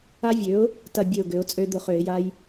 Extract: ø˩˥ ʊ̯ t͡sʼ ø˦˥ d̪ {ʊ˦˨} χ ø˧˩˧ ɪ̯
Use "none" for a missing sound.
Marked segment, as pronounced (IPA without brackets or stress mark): ʊ˦˨